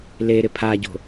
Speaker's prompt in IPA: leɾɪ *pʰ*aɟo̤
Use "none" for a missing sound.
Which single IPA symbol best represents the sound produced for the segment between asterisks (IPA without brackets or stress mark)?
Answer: pʰ